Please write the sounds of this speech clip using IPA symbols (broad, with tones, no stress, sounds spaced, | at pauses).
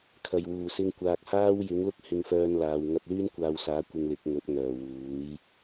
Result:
kʰ ɐ˨˩ j w uː˨˩ s ɪ˧ ŋ kʷ aː˨ k̚ h aː˥ w j ɪ˨˥ ŋ l ʊ˥ k̚ h ɪ˧ ŋ f œː˧ n l aː˨ w ŋ ɐ˧ p̚ l yː˥ n kʷ aː˧ w s aː˨˥ kʷ ɪ˧ ŋ l ɪ˨˥ k̚ ŋ ɵ˨˥ t̚ ŋ œː˨˩ w uː˨˥ j